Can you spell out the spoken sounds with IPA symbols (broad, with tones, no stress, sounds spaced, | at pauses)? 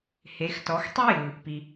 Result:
h e˩˧ x t ɔ˩˧ x tˤ ɯ˥ j ɯ˩ | p i˩